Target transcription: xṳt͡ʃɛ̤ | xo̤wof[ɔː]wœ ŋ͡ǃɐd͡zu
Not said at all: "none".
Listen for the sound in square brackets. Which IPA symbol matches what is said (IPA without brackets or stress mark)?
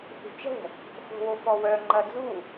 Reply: ɔ